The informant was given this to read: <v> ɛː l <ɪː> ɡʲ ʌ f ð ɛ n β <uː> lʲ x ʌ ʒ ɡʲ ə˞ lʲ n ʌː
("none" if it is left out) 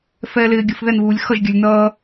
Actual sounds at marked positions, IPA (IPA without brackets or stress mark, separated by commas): f, ɪː, uː